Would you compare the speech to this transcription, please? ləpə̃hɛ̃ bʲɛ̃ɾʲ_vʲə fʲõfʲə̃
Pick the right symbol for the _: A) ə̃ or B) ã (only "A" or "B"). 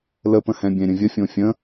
A